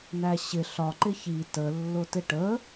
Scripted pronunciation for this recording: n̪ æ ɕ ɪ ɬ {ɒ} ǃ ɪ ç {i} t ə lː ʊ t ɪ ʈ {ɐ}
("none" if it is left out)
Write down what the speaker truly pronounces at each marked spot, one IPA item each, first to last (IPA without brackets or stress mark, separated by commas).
ɒ, i, ə